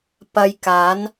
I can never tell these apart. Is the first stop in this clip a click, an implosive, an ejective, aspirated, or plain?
plain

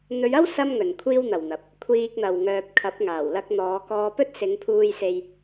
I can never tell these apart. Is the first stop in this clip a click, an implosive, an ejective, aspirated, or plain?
aspirated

